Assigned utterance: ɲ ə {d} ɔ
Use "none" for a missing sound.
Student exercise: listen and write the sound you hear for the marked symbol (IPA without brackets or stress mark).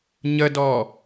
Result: d